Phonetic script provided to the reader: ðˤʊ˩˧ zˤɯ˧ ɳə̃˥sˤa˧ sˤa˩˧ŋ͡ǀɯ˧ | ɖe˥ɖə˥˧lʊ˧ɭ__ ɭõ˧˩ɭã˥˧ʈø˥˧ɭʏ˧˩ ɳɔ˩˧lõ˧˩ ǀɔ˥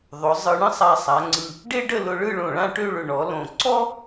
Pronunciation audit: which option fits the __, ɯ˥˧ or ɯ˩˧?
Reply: ɯ˥˧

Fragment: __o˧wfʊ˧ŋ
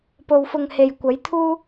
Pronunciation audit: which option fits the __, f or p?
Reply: p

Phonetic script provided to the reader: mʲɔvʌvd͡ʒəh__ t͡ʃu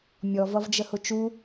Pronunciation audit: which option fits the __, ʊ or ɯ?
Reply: ʊ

